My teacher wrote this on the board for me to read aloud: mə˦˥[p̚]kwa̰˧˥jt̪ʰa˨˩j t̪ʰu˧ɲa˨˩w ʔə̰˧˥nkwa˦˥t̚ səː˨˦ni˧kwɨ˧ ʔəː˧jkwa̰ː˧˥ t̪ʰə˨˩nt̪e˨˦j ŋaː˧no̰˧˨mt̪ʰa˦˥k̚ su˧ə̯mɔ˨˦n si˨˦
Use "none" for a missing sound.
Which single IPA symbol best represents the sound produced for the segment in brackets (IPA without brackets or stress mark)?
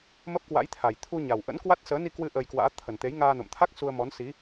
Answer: p̚